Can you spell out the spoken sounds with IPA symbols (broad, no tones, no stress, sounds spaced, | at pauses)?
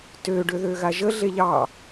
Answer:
t ø ɖ ø ð ø ɣ a ʒ ə ɮ e ʎ ɑ